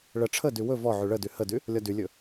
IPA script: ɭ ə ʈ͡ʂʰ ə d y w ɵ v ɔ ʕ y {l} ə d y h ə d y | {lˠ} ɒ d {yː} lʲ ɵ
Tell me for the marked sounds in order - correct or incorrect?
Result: incorrect, incorrect, incorrect

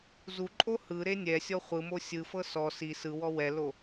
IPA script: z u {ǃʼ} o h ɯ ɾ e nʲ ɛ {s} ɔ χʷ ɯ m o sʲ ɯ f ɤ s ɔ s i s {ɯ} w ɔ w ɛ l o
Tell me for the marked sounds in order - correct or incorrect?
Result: correct, incorrect, correct

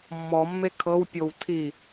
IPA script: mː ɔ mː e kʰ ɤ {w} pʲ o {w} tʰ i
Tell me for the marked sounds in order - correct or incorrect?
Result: correct, correct

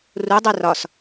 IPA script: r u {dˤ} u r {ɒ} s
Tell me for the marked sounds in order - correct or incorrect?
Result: correct, correct

